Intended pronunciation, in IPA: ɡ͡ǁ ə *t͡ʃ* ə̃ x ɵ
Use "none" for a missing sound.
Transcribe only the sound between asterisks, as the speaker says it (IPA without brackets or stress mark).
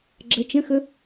t͡ʃ